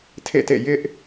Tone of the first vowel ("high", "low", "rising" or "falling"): falling